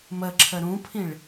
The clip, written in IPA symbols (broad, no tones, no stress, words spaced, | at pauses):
məǁʰə ɾũpʰĩɭ